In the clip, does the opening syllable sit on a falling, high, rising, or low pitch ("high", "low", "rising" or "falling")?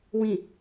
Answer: low